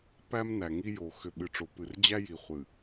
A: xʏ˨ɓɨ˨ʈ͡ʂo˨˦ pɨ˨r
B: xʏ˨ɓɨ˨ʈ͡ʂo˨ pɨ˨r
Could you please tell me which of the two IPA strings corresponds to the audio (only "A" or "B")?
B